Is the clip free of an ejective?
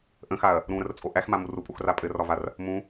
no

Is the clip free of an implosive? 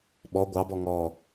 no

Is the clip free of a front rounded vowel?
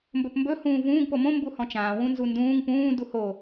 yes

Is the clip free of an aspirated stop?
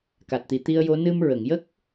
yes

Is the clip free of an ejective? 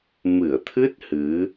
yes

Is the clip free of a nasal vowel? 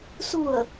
yes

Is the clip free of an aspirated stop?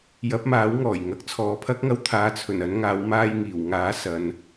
no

